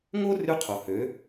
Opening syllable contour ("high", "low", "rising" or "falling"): high